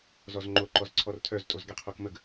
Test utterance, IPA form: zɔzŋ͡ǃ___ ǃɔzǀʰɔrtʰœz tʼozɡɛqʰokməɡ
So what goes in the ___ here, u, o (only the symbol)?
o